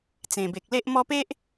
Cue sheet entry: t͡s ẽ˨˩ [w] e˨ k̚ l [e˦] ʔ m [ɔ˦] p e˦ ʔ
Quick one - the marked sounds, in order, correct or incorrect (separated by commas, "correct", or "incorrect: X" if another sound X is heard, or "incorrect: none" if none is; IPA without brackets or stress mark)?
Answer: incorrect: b, correct, correct